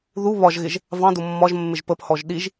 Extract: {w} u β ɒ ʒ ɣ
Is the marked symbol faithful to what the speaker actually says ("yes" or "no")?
no